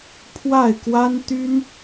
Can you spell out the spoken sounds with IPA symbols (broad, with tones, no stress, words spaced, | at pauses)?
pʰwa˥˩ɪ̯kwa˥n t̪y˥n